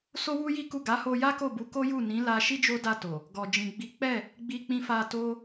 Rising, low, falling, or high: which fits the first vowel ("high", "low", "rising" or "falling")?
high